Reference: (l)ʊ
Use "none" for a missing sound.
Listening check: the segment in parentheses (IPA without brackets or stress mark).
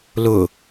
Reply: l